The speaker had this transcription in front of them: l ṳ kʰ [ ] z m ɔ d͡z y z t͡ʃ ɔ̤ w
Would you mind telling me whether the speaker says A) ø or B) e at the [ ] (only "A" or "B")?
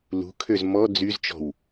A